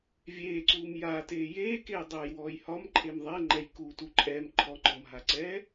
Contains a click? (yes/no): yes